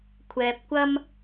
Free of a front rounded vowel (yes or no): yes